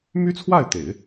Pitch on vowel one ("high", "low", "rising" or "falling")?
high